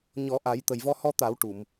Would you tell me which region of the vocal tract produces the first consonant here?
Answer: palate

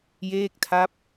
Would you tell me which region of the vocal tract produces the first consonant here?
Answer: palate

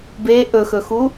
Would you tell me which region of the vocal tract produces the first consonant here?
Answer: lips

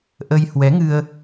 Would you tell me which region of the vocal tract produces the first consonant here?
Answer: throat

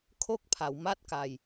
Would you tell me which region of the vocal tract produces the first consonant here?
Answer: velum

